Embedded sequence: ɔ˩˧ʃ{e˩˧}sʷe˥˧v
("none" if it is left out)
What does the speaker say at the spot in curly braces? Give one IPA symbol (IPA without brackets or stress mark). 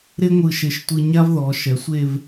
ɛ˩˧